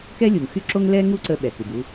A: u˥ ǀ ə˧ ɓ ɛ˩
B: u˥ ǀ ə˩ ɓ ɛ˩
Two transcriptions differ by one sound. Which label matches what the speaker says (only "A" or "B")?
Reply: A